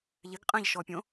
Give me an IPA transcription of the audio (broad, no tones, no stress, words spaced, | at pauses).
ʎɪɡqʼɛ̃ʎʃɔpʲõ